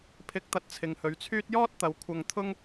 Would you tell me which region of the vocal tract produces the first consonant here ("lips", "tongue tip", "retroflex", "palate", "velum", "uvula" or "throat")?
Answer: lips